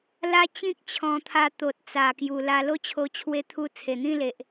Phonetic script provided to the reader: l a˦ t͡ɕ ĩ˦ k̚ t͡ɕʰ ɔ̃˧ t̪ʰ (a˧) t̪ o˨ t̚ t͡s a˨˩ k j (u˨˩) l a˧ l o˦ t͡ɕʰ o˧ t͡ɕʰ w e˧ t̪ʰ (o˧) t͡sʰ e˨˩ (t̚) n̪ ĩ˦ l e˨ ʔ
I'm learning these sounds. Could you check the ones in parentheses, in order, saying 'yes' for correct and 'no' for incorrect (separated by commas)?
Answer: yes, yes, no, no